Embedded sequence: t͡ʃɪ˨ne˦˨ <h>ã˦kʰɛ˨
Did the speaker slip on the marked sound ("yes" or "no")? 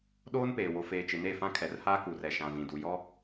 yes